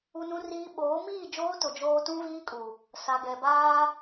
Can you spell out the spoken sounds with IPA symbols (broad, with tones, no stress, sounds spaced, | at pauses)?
u˦ n ũ˦ r iː˦ ɓ oː˨˦ m iː˦˨ d͡ʒ oː˦ t ʊ˨ d͡ʒ oː˦ t ũ˦ v iː˦ kʼ u˨ | s a˨ ɡ ɛ˨ b aː˦